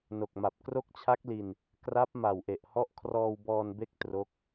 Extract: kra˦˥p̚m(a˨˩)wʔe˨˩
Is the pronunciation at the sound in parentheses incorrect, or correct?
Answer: correct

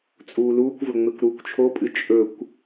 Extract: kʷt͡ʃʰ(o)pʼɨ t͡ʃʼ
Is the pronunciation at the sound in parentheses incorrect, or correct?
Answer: correct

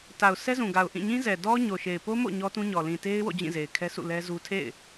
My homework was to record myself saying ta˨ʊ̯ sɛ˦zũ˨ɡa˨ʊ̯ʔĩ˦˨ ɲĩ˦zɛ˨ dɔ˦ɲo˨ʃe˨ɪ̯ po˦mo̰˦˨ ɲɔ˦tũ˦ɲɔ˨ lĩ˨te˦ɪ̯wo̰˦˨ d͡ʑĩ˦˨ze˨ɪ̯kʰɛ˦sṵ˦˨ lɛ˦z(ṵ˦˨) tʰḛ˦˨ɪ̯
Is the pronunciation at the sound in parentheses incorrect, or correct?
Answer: incorrect: u˦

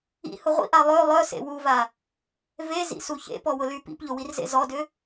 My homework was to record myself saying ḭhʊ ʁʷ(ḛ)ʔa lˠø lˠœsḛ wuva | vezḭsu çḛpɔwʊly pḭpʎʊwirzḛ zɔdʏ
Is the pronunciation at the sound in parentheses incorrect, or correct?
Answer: incorrect: ḭ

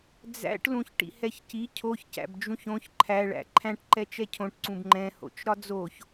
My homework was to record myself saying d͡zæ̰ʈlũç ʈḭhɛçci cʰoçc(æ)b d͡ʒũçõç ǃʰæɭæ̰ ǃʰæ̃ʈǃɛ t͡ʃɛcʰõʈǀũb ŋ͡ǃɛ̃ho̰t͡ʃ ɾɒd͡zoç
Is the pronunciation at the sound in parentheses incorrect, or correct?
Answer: incorrect: æ̰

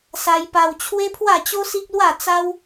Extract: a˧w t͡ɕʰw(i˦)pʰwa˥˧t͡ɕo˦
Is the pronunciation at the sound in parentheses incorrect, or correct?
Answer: incorrect: e˦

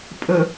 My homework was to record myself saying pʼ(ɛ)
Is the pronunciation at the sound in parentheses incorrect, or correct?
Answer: incorrect: ə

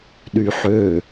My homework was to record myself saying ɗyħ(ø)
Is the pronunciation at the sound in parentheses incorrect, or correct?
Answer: correct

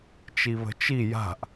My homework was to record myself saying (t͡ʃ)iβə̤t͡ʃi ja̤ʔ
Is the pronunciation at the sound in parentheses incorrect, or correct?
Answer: correct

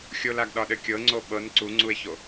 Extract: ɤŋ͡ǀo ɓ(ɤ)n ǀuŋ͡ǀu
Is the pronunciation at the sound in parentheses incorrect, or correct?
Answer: correct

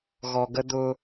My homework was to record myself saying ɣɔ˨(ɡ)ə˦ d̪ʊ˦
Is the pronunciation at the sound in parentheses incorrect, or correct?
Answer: correct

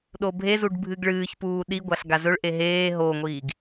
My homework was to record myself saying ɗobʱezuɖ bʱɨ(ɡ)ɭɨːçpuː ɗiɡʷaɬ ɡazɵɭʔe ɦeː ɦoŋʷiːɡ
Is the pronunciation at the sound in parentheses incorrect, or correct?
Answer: correct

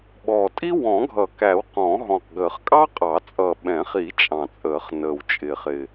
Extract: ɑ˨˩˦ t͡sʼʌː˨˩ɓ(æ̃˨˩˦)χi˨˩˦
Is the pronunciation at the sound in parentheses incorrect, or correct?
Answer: incorrect: ɛ̃˨˩˦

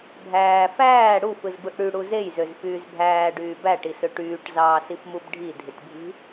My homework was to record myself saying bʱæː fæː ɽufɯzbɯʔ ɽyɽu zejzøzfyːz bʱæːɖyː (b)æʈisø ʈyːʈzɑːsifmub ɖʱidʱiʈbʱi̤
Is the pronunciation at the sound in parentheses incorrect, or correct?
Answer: correct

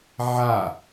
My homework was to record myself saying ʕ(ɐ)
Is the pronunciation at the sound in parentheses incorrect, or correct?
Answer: incorrect: a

